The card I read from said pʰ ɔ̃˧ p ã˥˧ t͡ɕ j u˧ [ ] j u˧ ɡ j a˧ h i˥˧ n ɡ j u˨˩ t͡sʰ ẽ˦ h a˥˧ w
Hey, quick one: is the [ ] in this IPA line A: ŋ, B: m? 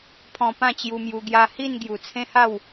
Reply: B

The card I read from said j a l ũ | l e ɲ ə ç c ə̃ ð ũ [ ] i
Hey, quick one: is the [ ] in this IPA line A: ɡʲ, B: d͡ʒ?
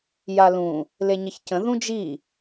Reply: B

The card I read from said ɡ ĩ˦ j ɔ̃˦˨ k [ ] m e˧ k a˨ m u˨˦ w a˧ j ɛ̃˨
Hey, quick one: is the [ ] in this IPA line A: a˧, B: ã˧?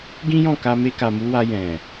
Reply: A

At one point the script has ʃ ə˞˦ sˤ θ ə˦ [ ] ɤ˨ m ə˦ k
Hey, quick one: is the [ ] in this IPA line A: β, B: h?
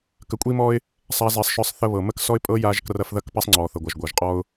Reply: A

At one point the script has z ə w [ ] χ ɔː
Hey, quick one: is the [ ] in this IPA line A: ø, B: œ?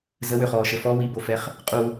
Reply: A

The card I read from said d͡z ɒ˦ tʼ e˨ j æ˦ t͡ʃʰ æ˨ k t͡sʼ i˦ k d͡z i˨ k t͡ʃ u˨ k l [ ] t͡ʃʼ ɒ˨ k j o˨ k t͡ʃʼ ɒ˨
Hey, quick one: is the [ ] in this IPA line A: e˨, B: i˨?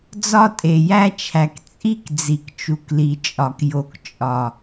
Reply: B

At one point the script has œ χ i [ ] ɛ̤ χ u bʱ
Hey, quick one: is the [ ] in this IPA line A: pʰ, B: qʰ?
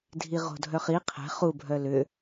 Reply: B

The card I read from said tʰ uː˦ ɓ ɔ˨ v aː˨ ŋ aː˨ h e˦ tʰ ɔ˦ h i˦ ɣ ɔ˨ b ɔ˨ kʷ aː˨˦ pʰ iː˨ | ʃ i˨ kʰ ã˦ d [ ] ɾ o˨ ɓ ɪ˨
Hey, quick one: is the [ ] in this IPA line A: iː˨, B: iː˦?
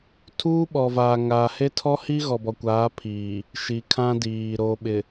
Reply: A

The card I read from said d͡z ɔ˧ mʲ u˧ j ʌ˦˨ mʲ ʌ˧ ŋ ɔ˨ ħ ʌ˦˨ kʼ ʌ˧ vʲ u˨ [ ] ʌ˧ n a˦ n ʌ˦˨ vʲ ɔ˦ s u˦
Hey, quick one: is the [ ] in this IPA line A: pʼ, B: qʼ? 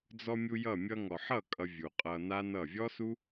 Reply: B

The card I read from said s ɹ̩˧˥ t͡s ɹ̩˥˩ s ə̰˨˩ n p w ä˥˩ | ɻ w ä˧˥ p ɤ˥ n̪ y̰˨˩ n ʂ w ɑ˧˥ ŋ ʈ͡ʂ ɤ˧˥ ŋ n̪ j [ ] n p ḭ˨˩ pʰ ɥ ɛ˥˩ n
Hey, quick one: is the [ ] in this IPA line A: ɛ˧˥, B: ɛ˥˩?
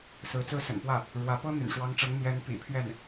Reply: A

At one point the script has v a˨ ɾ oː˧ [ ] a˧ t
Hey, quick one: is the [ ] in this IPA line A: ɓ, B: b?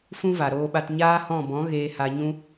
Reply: A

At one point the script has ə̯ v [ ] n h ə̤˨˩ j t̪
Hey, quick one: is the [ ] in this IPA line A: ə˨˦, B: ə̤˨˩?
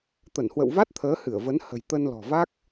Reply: A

